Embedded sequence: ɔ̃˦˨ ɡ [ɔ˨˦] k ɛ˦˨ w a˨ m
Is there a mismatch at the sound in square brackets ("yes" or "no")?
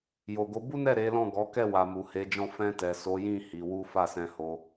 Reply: no